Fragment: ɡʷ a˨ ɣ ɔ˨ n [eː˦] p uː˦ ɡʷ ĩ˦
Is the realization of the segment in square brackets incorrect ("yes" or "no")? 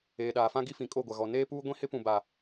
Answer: no